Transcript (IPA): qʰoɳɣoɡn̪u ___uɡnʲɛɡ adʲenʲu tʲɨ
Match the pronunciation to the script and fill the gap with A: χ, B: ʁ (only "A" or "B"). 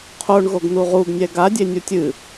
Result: B